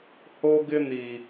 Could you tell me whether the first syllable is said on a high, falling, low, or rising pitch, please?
high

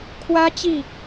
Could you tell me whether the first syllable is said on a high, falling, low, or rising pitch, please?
high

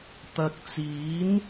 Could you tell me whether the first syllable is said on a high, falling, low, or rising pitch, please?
low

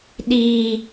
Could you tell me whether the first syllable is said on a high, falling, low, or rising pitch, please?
high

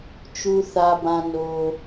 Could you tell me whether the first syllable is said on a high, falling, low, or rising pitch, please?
low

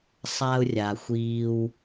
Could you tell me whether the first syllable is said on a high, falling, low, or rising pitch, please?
low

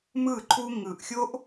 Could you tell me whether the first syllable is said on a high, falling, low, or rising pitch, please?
falling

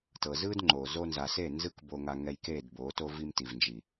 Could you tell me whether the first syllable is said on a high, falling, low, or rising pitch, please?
low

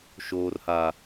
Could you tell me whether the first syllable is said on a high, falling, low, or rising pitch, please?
high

